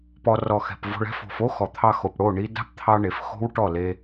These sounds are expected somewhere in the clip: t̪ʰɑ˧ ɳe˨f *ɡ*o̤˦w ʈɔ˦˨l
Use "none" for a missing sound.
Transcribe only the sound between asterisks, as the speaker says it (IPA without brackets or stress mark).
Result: x